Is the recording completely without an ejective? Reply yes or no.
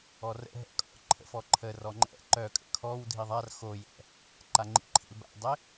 no